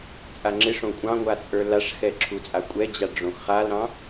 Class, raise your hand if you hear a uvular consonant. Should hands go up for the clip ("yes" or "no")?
yes